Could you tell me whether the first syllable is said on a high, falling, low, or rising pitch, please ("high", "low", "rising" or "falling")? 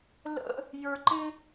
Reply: high